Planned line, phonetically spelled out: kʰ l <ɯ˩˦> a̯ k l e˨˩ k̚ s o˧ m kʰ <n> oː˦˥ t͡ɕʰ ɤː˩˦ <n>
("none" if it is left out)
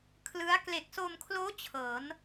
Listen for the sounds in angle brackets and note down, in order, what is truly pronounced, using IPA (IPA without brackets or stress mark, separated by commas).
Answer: ɯ˦˥, l, n